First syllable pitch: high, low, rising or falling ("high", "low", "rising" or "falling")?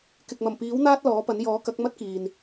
low